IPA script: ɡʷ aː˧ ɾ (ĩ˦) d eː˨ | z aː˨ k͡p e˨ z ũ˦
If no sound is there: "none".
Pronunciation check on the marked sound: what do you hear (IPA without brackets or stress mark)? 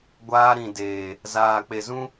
ĩ˨